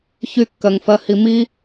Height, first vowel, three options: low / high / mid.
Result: high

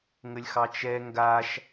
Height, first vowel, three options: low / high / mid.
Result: mid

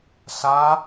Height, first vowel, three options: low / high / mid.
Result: low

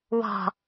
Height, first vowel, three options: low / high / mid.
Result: mid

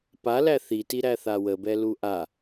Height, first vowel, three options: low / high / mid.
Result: low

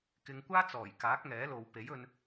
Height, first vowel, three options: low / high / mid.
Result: high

